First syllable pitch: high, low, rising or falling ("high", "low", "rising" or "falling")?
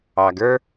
low